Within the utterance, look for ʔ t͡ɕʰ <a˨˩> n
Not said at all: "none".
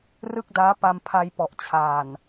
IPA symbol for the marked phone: aː˨˩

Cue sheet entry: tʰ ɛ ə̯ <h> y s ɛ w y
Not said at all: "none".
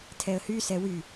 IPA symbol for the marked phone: h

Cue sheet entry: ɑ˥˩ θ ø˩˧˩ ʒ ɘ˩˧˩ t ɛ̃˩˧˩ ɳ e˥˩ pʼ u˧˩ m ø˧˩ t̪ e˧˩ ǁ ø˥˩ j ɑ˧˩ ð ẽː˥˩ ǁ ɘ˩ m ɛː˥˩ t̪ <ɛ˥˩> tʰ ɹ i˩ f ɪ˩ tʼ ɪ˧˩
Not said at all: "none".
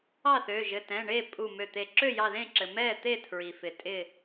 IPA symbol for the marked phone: e˥˩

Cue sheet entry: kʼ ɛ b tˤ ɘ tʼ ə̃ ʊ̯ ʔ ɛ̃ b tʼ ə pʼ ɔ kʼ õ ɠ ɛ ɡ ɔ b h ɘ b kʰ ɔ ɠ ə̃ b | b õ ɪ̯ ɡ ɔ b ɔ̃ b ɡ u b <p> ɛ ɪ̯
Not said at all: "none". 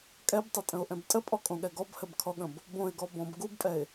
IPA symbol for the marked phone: pʼ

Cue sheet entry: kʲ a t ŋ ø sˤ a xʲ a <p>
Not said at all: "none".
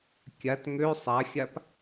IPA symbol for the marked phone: p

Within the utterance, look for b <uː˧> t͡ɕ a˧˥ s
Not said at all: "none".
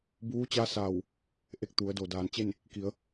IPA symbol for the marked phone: uː˧˥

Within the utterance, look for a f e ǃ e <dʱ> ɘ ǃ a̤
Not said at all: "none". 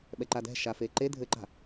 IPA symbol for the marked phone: dʱ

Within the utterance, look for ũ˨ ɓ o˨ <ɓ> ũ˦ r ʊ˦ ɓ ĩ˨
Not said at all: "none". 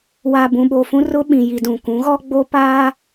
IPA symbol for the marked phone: f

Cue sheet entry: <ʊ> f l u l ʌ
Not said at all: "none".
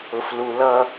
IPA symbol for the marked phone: ʊ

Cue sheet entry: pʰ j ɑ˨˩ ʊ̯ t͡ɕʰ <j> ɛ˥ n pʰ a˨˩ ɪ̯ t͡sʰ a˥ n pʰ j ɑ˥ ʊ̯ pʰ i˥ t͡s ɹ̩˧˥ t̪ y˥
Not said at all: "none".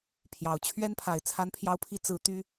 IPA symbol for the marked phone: ɥ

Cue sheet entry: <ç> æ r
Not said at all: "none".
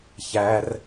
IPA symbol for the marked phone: ç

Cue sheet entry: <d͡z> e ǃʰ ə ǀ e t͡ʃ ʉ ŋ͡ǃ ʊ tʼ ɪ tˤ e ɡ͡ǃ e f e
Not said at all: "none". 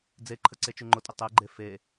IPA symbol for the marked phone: d͡z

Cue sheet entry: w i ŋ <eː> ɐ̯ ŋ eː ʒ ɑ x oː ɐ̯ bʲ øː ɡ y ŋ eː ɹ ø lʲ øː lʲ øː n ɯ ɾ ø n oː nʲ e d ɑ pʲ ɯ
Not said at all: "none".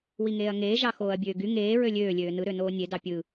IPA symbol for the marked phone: eː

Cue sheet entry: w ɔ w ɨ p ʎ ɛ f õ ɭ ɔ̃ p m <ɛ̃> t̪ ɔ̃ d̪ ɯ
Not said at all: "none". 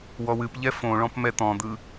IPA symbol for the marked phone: ɛ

